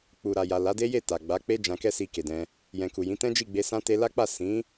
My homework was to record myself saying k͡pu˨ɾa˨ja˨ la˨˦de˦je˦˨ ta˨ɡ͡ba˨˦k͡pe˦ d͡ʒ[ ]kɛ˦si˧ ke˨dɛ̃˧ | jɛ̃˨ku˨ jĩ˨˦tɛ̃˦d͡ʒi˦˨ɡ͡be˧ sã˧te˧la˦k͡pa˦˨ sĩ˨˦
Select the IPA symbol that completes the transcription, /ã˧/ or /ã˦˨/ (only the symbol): ã˧